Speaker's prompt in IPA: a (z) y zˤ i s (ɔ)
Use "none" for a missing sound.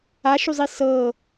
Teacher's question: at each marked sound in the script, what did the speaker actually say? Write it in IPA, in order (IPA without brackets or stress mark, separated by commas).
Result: ʃ, ɤ